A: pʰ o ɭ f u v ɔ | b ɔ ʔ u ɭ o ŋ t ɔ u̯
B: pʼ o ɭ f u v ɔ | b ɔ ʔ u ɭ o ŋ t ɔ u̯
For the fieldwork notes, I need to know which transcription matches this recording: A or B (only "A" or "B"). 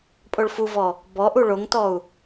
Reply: B